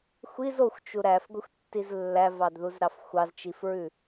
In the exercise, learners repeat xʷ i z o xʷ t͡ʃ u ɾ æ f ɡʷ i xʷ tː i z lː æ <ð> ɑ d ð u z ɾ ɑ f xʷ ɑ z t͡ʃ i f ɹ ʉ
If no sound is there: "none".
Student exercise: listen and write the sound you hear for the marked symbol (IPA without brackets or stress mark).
v